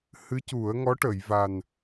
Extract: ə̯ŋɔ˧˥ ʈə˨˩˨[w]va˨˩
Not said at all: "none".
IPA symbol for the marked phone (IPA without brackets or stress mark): j